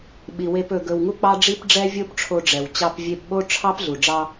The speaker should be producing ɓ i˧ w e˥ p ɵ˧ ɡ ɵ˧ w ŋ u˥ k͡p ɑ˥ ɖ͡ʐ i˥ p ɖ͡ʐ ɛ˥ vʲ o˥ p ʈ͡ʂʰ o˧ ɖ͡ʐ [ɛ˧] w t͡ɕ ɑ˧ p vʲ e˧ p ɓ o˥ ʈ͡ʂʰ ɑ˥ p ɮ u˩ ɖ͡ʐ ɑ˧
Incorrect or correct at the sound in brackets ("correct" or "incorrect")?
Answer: incorrect